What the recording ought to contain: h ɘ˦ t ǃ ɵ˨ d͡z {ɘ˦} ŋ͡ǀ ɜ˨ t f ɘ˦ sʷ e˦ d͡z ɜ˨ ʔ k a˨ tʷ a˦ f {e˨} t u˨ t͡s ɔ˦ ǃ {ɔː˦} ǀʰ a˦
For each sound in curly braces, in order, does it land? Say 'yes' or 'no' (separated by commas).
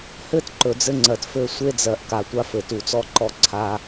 yes, no, no